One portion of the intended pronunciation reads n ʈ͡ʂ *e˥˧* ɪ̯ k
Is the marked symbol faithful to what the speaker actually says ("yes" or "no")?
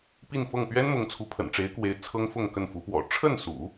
no